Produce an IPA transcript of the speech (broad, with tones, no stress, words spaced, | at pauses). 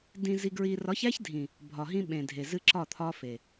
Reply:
dĩ˨zi˨ɡɹi˨ rɒ˨˦çæ˦ç dʱĩ˨ | bʱɒ˨ɦĩ˦ ɓẽ˨dʱe˨ zɨ˦ǁɒ˦˨t̪ʰɒ˦fe˨